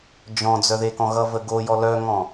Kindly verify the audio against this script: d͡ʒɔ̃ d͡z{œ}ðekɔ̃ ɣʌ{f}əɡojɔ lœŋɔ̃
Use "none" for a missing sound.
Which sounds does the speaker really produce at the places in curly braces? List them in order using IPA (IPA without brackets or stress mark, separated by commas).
œ, v